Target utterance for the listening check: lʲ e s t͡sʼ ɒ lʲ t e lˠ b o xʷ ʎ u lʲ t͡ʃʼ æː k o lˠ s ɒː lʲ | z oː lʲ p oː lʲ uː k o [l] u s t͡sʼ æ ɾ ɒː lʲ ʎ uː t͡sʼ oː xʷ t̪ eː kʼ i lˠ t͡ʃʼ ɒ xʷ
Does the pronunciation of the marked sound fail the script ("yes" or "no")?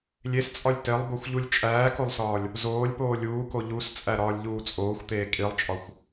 yes